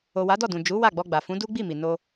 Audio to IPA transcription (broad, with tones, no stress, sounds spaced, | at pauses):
o˨ w a˨˦ d ɔ˦˨ d ũ˨ d͡ʒ u˨˦ w a˦˨ ɡ͡b ɔ˧ ɡ͡b a˨ f ũ˨˦ d u˦ ɡ͡b i˦˨ m i˨ n o˧